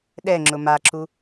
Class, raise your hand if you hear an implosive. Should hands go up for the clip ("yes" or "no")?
yes